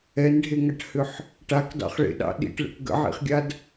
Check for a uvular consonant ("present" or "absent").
present